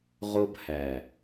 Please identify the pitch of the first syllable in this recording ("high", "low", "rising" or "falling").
high